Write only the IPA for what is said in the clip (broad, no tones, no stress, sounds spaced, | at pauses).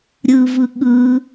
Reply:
ɾʲ ɯ v ɯ ɠ ɯ